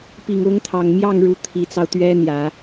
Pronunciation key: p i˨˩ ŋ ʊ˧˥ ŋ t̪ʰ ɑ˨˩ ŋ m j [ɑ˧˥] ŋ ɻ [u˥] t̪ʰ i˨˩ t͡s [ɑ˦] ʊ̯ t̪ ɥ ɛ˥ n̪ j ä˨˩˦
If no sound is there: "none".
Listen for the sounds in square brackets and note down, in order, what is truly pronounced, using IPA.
ɑ˥˩, u˧˥, ɑ˦

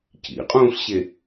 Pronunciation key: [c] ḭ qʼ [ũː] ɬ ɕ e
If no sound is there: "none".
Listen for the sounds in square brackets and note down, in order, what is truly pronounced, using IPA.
c, ũː

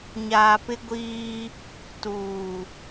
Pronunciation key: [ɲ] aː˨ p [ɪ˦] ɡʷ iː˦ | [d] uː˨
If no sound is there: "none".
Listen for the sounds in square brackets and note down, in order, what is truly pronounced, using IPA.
ɲ, ɪ˦, t

